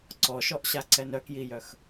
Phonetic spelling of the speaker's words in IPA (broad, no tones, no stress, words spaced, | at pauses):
ǀɔʃɔʔɕaǀɛn œkjijœx